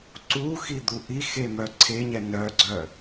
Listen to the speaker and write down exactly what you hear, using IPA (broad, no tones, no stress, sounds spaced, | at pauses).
ǀ u x i d̪ u ʔ i x e m œ ǀʰ e ɲ ɛ n œ ɡ͡ǀ œ